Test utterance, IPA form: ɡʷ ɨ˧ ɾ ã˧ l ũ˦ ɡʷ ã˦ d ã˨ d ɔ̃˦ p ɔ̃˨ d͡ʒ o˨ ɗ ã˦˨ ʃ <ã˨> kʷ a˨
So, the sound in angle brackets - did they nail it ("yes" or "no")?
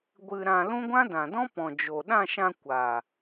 no